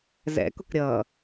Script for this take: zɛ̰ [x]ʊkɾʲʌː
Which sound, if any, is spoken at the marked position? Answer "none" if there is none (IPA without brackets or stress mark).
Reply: k